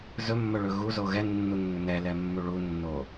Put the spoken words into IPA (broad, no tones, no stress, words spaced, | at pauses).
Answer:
zɵmːɵɭɵ ɣuzo ɣɛnːunːɵ nɛlɛmːu ɭunːo